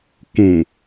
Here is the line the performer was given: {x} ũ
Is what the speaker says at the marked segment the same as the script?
no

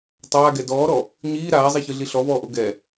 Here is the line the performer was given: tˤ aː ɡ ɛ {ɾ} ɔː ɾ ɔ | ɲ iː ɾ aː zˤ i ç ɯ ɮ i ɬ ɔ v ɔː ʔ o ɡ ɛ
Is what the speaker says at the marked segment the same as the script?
no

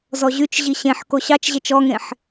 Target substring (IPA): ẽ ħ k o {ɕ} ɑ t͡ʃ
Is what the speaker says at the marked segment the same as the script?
yes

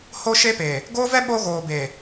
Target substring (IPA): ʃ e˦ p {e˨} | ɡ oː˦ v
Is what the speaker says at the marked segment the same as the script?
yes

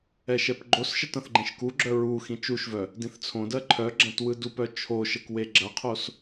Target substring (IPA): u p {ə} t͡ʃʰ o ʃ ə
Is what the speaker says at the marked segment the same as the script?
no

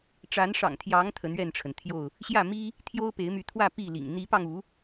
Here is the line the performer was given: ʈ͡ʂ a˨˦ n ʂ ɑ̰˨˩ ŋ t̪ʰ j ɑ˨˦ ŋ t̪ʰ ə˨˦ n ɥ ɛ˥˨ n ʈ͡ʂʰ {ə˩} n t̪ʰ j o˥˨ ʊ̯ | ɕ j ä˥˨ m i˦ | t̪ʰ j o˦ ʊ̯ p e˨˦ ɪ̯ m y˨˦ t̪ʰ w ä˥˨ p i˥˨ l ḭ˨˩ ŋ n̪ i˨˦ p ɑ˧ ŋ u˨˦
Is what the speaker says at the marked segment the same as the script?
yes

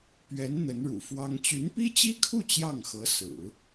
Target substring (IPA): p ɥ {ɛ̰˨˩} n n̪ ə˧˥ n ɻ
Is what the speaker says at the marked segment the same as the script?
no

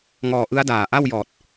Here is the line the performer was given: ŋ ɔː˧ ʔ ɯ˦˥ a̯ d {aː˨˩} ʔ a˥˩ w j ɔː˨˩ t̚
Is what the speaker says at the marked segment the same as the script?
yes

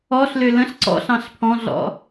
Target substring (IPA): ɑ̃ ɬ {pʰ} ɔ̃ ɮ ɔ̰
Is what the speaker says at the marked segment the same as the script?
yes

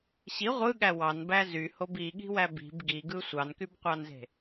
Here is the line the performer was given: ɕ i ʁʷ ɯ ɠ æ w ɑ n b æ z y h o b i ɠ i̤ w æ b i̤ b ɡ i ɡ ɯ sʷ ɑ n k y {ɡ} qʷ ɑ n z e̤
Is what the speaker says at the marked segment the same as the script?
no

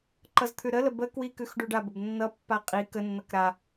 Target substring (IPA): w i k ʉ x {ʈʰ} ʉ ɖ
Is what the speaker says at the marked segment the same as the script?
no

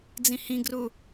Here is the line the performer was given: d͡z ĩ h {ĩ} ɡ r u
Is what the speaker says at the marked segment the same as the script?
yes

